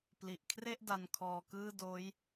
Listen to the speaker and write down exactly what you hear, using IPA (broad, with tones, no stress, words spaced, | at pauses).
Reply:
pli˨˩ʔkʰre˥˩ʔ da˧nkʰɔː˧kɯː˥˩ doː˦˥j